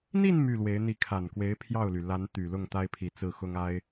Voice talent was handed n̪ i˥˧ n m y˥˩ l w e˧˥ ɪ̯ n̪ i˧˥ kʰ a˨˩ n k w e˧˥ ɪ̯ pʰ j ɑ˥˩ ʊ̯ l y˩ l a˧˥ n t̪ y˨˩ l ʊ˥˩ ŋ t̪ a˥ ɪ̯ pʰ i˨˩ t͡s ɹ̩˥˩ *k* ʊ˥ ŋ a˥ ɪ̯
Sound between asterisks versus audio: incorrect: x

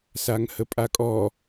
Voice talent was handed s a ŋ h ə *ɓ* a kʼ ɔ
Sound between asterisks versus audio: incorrect: pʼ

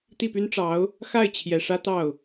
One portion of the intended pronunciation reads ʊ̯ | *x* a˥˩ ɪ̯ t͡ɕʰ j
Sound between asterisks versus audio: correct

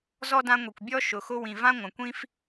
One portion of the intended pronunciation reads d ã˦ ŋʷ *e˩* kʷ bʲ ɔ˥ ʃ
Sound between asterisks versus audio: incorrect: i˩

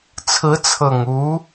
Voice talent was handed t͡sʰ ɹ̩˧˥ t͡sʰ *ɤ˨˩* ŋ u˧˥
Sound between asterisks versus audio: correct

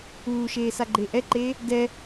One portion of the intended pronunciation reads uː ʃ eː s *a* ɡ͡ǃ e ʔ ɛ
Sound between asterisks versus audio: correct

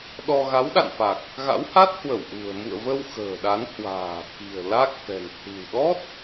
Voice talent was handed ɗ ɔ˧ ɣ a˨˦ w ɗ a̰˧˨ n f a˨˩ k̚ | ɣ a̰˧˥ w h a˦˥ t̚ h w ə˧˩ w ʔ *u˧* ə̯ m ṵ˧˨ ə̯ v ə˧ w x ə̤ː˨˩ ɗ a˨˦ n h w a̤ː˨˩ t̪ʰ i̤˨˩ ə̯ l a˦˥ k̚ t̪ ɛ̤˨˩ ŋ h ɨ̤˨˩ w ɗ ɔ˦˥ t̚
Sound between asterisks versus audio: incorrect: ṳ˨˩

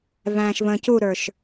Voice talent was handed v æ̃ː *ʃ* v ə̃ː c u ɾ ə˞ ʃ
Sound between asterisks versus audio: correct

